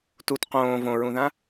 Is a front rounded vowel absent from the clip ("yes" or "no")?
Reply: yes